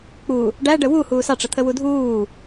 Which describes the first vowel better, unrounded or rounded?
rounded